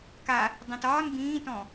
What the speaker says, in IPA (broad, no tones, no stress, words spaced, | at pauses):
ka | dˤĩtɒːn bĩːtɔ̃